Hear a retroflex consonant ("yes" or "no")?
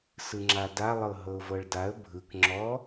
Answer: yes